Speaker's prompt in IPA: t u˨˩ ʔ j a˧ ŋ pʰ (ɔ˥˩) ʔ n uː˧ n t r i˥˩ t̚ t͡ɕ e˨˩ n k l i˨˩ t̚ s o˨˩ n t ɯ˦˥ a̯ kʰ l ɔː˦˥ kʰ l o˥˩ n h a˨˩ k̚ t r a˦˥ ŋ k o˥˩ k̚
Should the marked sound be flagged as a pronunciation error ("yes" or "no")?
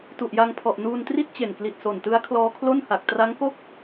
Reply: yes